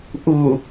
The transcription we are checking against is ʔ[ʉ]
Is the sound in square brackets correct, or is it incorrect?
incorrect